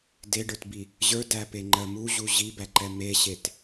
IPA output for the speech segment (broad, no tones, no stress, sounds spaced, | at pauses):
d e ɖ ə˞ t b i | ʑ ə˞ d æ p e ŋ͡ǃ ɜ m u ʑ u ʑ i b æ ǃ ɛ m e ɕ e t